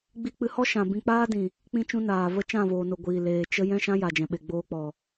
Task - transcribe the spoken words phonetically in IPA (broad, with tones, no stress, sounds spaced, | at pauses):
ɡ͡b i˧ k͡p ɨ˧ h ɔ˦ ʃ ã˨ b ĩ˧ k͡p aː˦ d ĩ˨ | k͡p ĩ˦ t͡ʃ ũ˦ n aː˨ v ə˦ t͡ʃ ã˦˨ v oː˨ n o˨ ɡʷ iː˨ l eː˨ t͡ʃ ə˦ j ɛ̃˦ ʃ ã˦ j a˨ d͡ʒ ɛ̃˨ ɓ e˨ ɡ͡b oː˧ k͡p ɔ˨